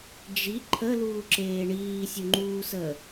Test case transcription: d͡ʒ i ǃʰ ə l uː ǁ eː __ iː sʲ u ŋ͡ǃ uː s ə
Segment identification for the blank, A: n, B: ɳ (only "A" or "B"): B